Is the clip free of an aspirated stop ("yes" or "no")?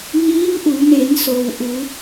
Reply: yes